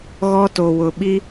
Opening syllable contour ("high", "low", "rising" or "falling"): high